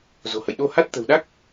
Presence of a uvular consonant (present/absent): absent